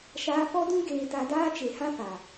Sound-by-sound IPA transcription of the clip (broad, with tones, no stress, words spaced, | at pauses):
ʃaː˧fɔ˦dũ˦ ɡeː˧ta˧daː˦ t͡ʃe˨hã˦fa˨